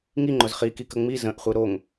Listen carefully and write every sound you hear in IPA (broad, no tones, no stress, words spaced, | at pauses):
ŋi ŋ͡ǃʊzχi kikəŋ͡mi zə̃ʔχʷɨ ɾoŋ